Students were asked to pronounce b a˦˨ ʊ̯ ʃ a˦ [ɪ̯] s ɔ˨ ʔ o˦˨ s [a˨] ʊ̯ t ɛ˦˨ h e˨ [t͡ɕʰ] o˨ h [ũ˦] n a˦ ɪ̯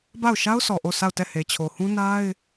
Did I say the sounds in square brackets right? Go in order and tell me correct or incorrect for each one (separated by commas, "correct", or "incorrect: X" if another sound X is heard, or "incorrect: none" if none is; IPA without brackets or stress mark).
incorrect: ʊ̯, incorrect: a˦˨, correct, correct